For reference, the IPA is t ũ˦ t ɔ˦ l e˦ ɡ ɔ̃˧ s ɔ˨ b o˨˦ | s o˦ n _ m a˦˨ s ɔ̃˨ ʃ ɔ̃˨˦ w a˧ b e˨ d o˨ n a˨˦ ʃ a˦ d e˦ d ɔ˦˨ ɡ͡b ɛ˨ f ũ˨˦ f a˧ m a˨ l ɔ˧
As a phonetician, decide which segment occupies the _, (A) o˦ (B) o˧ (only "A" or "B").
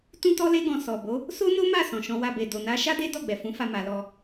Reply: A